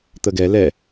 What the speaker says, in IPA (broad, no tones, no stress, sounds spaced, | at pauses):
t̪ ə ɡ ɛ l ɛ